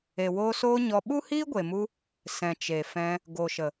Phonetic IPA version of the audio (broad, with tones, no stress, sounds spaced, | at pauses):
e˨ w oː˧ s oː˦ ɲ ɔ˧ ɓ u˦ h iː˦ ɡʷ e˨ m u˧ | s ɛ̃˨ t͡ʃ e˨ f ɛ̃˧ | ɡ o˨ ʃ ə˨